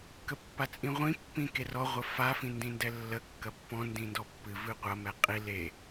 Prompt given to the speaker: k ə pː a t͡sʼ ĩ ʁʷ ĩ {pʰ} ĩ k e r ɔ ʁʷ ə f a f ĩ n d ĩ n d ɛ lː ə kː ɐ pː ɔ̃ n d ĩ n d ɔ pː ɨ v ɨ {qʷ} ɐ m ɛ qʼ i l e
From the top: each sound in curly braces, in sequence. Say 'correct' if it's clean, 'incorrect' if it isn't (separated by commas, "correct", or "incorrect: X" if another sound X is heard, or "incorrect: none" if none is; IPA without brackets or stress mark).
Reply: incorrect: pː, correct